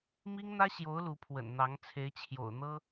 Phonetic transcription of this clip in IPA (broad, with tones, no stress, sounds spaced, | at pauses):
m i˥ ŋ n̪ ä˥ ɕ j o˧˥ ʊ̯ l u˧˥ pʰ w ə̰˨˩ n n̪ ɑ˧˥ ŋ t͡sʰ e˧˥ ɪ̯ t͡ɕʰ j o̰˨˩ ʊ̯ n̪ ɤ˥